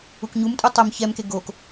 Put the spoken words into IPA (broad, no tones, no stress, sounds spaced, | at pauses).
u k ɲ u m tʼ u tˤ o m ç ɛ m k e ɡ o k